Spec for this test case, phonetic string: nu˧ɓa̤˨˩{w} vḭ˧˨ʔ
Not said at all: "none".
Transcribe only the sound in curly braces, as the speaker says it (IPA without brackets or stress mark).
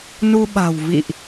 w